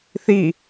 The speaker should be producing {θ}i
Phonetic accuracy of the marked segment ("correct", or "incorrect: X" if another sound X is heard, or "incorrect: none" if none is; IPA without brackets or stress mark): correct